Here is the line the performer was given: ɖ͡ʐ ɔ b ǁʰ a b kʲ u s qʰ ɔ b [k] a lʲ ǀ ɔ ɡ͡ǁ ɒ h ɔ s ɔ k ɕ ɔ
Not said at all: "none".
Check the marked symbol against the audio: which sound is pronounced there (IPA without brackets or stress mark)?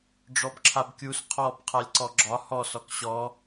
qʰ